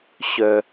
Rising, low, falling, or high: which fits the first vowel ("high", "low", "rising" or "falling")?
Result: low